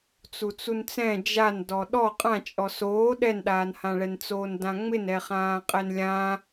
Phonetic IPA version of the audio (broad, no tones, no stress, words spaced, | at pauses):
t͡sut͡sunt͡sɛ̃ d͡ʒandɔ ɗɔ qʼãt͡ʃʼɔ soː ɗɛnɗaːnhãɭɛn t͡soːndãŋ͡mɪn ɛχãːqʼɛnlʲã